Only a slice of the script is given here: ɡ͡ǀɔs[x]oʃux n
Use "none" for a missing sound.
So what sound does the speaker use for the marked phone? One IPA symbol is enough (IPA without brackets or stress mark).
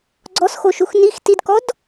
x